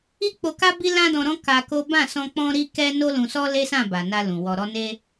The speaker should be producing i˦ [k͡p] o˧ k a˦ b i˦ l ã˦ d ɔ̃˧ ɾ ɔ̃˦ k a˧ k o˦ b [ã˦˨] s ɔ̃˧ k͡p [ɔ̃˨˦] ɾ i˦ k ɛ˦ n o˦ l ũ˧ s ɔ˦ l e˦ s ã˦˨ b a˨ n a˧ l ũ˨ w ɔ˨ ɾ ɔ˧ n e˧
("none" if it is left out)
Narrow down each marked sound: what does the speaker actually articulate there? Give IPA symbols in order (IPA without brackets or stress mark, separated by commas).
k͡p, ã˦˨, ɔ̃˦